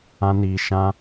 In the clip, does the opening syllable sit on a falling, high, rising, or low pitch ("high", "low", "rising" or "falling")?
high